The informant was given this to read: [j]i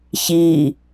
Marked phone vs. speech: incorrect: ç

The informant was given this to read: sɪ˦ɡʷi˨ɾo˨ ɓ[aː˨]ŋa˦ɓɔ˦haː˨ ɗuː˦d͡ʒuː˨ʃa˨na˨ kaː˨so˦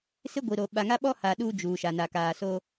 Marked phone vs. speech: incorrect: a˨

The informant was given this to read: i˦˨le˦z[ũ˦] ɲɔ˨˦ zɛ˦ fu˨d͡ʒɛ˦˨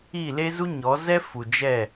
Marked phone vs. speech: incorrect: u˦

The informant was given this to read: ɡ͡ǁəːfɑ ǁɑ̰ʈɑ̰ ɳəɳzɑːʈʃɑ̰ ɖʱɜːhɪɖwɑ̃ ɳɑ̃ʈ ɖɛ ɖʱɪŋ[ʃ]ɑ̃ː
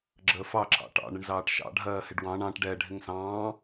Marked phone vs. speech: incorrect: s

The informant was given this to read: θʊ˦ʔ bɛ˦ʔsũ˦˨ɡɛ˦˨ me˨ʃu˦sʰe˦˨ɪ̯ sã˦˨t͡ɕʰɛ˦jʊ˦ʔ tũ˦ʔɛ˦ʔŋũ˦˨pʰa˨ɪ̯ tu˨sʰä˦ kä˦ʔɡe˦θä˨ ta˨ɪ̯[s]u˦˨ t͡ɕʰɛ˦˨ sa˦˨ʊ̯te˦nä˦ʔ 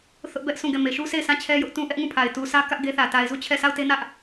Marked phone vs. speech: incorrect: z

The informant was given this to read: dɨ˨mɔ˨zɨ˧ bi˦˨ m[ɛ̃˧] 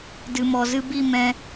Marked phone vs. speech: correct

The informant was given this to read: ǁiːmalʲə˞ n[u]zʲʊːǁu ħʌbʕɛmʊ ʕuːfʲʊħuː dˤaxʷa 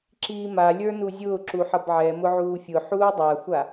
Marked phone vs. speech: correct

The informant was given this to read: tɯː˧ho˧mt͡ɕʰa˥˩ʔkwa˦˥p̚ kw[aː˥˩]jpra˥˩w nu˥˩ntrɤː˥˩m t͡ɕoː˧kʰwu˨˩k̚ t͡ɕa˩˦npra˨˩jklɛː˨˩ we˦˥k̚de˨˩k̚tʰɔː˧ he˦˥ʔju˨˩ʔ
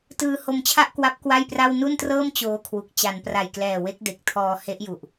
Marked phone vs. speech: incorrect: a˥˩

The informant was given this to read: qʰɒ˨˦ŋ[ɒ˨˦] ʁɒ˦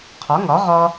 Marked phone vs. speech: correct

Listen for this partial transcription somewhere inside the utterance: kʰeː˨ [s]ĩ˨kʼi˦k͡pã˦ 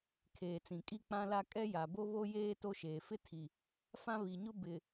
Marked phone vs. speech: incorrect: t͡s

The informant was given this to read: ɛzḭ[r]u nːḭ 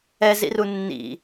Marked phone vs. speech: correct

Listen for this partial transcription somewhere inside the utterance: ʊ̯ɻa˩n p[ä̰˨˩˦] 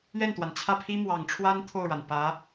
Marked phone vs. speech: incorrect: ä˧˥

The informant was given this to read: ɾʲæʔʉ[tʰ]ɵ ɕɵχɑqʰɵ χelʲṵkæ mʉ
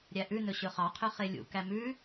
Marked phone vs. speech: incorrect: n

